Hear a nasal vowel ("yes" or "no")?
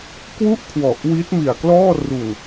no